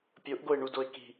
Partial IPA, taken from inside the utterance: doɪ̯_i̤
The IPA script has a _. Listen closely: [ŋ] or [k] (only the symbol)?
k